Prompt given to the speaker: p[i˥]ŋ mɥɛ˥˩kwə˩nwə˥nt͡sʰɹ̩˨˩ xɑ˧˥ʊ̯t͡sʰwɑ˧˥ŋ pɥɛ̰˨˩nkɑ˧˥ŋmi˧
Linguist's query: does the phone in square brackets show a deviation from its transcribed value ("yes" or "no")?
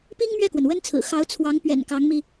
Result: no